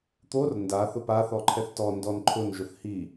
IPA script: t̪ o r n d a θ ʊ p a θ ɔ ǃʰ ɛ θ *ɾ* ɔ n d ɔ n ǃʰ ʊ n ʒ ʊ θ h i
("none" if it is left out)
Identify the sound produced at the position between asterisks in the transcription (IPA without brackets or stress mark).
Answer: t